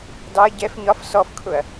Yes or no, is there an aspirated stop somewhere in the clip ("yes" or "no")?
yes